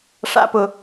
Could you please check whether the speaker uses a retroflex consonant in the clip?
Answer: yes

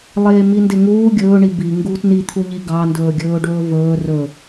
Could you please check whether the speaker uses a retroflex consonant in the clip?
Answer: yes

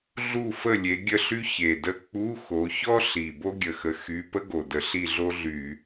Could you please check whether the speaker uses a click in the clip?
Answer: no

